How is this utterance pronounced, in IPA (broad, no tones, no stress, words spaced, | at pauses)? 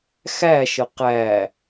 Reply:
xæʃə qæ